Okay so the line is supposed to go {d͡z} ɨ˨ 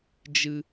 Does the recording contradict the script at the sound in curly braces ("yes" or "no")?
yes